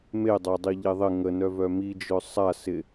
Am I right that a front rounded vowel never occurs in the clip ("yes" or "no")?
no